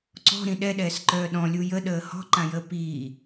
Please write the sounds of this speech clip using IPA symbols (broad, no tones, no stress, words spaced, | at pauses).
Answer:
ǀɔ̤ɾĩ ɗɛɗɛːsǃœː ɗɔ̃lʲu jəɗəː hɔ̤ǃãjəː piː